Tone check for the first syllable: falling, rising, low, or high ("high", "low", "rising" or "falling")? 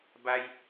high